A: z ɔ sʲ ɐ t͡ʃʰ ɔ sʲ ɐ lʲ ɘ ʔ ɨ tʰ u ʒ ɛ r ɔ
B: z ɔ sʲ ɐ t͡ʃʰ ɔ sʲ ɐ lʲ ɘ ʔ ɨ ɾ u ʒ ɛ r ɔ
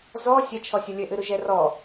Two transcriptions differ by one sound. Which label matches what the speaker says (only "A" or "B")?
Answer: B